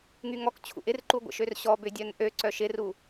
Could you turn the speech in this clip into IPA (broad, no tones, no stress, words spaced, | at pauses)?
ŋyŋɔkt͡ɕʰṵ ʔɪrǃu ɡʷə̰ʃørɕɔbʏ dʲœnʔøǀœ ʃɪru